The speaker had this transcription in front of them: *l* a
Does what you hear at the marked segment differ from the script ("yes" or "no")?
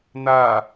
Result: yes